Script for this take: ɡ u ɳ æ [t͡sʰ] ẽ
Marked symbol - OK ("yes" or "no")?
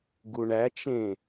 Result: no